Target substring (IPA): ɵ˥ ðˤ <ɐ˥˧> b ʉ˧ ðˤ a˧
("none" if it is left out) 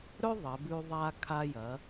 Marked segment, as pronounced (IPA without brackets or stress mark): ɐ˩˧